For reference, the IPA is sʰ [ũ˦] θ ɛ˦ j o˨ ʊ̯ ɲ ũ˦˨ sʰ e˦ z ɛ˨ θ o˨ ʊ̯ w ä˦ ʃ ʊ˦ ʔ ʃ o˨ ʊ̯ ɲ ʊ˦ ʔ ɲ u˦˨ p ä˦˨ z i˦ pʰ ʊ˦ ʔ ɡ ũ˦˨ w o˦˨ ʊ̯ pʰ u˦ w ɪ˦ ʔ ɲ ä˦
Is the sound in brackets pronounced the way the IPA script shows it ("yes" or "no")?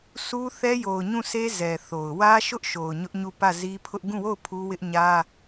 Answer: no